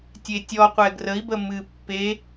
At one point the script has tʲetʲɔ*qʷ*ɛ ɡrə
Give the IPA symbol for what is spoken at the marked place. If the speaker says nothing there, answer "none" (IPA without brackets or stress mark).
qʷ